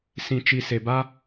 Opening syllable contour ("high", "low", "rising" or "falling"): low